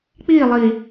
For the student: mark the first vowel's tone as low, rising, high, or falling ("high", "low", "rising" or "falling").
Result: falling